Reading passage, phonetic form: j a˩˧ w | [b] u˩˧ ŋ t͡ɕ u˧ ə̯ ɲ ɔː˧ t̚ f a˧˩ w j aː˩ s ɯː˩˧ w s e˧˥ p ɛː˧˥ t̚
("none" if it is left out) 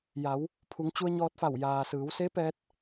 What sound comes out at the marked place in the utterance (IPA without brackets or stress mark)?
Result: pʰ